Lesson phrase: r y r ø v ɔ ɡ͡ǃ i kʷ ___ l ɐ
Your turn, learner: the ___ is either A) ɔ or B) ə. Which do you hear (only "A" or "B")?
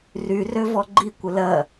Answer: B